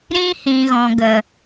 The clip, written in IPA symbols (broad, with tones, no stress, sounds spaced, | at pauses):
ɾ ĩ˦ h ĩ˨ ɣ ɔ̃˨ ɡ ə˨